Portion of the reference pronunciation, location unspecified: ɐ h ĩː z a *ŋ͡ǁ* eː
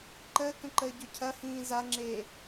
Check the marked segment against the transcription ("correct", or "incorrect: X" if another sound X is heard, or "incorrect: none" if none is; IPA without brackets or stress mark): correct